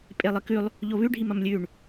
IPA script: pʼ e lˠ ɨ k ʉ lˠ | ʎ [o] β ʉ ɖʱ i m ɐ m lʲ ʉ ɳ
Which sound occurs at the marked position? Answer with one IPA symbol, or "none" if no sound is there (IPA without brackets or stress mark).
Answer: o